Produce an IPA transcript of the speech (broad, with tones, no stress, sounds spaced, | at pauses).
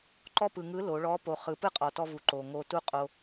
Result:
ǃ ɔ˥ p ɯ˩ ŋ ɯ˧˥ l o˩˧ ɭ ɔ˧˥ p o˩˧ χ ɯ˩˧ p ɯ˥ qʼ ɔ˩ t ɔ˧ v u˩ ǃ o˩ ŋ o˧ t u˥ qʼ o˧